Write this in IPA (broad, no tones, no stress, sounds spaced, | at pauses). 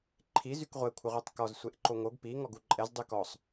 ǃʰ i z y k ʁʷ ɛ kʷʰ ə ʁʷ i tˤ k ɔ z sʷ e ʔ ǃ o ŋ o ɡ p i ŋ ɔ ɡ u ǃʼ ɛ z dˤ y k ɔ sˤ